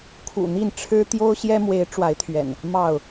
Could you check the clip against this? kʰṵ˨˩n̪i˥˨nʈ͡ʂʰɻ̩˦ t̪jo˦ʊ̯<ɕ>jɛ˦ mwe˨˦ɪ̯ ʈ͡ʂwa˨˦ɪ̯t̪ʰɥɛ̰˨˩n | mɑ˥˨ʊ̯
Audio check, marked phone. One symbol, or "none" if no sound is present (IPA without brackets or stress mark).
ɕ